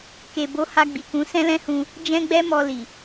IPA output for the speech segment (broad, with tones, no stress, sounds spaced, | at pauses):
k e˨ b o˨˦ h a˧ ɡ͡b i˨ k ũ˨˦ s ɛ̃˦ l ɛ̃˦ h ũ˧ | d͡ʒ ɛ̃˦ ɡ͡b ɛ˦ m ɔ˧ l i˨